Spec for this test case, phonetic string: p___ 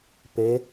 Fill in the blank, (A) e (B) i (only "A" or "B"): A